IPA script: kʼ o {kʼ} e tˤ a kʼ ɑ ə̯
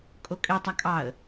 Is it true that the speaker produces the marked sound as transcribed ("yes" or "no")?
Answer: yes